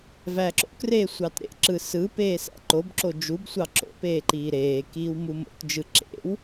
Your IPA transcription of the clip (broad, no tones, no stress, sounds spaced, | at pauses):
v æː ǁ o̰ k r eː sʷ ɑ t ɾ ḛ ǁ ɯ s ɯ p eː s æ̰ ǃ o b ǁ o d͡ʒ u b sʷ ɑ ǁ o̰ p eː ǃ iː ɾ eː k iː w m u m o̰ t d͡ʒ ɯ ǁ ḛ w